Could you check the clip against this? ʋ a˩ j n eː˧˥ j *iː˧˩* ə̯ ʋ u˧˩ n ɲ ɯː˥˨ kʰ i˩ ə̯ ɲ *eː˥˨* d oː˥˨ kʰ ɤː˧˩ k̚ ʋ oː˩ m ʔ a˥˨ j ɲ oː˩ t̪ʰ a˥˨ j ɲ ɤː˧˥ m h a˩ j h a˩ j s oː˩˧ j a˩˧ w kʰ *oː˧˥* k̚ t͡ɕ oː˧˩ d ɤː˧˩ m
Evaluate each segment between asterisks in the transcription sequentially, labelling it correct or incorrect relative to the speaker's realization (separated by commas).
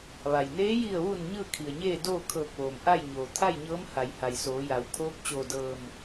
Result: incorrect, correct, correct